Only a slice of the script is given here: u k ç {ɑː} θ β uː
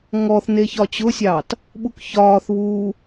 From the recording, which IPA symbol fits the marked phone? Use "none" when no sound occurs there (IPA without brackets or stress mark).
ɒː